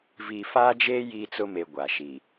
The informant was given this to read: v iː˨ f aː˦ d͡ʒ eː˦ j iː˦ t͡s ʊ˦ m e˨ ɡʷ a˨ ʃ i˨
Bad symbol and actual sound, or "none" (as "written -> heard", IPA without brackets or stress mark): none